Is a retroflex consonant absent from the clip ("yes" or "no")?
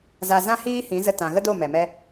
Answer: yes